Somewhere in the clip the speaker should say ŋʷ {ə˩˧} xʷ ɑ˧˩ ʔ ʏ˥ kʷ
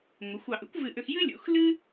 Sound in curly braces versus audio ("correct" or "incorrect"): correct